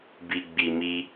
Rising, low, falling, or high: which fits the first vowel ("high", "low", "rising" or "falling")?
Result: low